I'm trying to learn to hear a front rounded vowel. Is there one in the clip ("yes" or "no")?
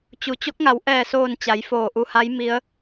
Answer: no